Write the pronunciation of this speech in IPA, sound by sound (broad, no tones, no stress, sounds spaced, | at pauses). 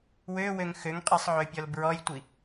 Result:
w ø w ø ŋ x ø ŋ qʼ i sˤ ʕ ø pʲ ɔ l b ɹ ɔ j tʷ i